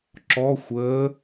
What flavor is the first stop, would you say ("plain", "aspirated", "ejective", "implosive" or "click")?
click